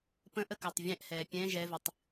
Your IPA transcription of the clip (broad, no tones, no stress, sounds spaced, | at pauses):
p ə̃ ʔ ə k a tˤ vʲ ɛ̃ ʔ h ɛː pʲ ɛ̃ ʒ ɛ v ɨ tˤ